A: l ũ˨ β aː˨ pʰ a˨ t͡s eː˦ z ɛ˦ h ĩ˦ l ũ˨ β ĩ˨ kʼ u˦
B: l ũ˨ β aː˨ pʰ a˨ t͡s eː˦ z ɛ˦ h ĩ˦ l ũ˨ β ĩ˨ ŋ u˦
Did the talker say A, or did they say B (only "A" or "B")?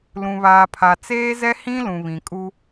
A